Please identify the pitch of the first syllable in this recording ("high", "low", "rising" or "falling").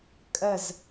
falling